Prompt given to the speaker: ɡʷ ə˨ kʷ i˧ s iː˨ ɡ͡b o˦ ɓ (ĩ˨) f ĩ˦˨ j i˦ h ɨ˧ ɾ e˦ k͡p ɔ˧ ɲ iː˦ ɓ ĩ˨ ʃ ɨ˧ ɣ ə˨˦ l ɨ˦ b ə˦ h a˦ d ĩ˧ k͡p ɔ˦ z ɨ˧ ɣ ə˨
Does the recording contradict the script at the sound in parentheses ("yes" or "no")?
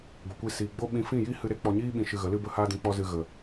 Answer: yes